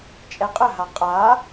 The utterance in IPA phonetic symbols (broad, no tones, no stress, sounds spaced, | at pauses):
t͡ʃʼ ɛ qʼ ə ɦ a qʼ a